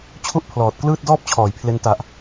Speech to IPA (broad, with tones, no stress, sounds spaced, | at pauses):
t͡ɕʰ u˥˩ ʔ pʰ l ɔː˨˩ t̚ k l ɯː˥˩ t̚ d ɔː˥˩ p̚ t͡ɕʰ ɔː˩˦ j pʰ l e˧ n t a˨˩ ʔ